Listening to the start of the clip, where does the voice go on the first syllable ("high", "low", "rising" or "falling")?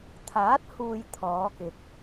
rising